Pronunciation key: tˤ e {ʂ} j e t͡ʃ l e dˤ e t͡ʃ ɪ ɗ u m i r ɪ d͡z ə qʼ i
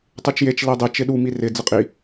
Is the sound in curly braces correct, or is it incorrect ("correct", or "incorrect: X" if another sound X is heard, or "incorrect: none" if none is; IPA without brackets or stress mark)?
incorrect: t͡ʃ